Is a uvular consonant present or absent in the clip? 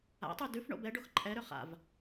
present